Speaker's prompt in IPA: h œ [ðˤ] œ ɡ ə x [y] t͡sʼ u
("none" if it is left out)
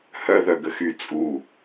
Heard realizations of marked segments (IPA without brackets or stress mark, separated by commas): ð, y